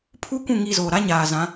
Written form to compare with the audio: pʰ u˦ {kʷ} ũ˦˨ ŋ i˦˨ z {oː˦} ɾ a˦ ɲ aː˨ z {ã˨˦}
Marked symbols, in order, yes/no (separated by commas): yes, no, yes